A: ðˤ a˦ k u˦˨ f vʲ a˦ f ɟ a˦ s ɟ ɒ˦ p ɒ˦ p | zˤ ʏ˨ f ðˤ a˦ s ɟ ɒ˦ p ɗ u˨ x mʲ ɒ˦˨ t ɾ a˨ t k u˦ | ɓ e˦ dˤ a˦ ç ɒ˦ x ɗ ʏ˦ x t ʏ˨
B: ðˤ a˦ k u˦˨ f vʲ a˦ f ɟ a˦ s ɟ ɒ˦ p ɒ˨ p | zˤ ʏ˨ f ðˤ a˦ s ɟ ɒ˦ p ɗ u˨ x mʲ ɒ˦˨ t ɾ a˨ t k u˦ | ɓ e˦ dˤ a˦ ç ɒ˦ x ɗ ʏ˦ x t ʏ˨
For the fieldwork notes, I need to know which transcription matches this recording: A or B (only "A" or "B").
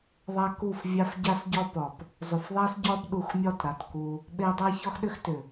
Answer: B